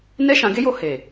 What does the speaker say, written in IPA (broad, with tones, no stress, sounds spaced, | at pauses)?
n ɛ˦ ʃ ã˧ ɡ e˦ j o˧ h e˨